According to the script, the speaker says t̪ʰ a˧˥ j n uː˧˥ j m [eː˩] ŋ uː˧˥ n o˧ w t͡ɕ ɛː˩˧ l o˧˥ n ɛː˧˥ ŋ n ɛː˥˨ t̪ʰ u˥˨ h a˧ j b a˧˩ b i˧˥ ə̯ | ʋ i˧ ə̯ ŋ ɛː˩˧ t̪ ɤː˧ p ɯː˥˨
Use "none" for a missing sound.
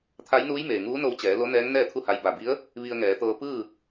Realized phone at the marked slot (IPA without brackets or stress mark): eː˩